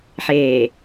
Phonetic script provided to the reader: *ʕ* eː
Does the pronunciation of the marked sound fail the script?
yes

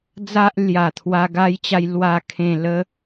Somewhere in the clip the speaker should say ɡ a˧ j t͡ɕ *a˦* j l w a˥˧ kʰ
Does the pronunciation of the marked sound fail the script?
yes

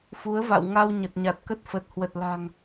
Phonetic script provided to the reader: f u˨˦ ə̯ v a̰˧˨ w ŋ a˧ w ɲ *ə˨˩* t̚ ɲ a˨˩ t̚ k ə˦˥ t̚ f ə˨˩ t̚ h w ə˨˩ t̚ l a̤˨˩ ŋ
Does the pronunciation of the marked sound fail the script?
no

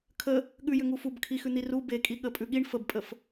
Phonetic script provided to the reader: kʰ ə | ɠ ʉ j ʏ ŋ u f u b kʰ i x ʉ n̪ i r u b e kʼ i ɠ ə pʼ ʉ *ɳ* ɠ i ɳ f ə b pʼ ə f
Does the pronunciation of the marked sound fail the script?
yes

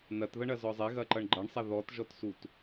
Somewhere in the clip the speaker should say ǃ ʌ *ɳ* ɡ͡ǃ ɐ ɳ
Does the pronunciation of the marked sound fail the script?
no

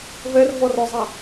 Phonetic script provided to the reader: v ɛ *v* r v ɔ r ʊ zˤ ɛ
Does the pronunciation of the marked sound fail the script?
yes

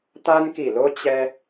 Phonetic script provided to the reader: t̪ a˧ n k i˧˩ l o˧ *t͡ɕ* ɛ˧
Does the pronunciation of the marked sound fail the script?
no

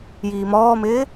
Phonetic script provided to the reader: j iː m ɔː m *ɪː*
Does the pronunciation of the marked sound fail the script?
no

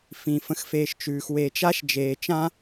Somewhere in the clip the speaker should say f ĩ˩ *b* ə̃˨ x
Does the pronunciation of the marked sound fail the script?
yes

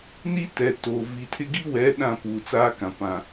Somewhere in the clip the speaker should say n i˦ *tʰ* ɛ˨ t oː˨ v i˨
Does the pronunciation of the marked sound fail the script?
yes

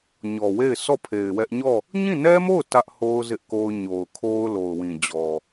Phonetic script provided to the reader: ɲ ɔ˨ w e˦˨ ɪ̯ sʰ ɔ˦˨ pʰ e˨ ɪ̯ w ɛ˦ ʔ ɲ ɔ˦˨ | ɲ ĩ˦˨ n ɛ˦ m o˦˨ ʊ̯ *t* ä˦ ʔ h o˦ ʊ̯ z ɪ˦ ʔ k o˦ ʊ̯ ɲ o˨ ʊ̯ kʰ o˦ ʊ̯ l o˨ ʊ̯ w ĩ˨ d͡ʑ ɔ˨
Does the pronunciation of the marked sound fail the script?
no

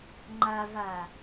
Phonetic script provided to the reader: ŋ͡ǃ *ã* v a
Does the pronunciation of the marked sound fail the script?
yes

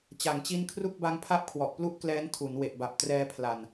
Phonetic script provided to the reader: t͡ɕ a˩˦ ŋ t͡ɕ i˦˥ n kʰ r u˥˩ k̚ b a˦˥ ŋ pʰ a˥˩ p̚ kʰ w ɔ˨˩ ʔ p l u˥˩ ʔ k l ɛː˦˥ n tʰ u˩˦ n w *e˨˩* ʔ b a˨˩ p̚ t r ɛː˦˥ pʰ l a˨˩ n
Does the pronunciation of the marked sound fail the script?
no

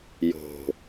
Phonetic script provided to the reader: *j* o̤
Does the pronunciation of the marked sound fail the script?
no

